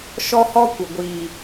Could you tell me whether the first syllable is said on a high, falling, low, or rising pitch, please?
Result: high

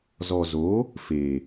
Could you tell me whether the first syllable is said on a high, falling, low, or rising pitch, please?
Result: low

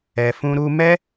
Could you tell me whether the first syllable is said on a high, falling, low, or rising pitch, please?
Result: low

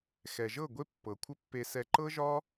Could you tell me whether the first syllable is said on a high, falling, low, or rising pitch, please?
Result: low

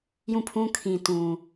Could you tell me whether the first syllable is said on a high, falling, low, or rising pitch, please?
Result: falling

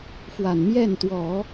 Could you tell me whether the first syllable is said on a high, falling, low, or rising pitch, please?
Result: low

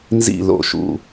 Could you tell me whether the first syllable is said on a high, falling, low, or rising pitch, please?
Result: falling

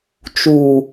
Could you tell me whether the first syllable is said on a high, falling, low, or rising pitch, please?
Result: low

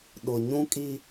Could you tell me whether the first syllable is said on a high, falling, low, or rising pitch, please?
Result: low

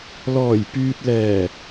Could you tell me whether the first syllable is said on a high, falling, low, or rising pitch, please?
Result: low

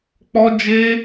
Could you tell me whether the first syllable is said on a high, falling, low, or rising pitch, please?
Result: high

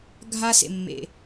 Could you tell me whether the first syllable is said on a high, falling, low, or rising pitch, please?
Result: high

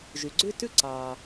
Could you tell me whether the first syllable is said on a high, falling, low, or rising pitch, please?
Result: low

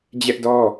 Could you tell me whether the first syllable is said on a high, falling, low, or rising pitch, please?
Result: high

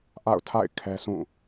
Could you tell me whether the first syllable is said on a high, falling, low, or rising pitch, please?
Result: falling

